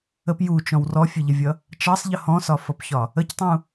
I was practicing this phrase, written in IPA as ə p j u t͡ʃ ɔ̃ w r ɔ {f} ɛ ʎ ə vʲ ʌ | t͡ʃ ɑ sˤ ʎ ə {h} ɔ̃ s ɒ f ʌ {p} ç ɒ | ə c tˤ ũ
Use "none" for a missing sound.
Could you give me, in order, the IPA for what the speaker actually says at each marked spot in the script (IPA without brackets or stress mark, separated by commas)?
fʲ, h, p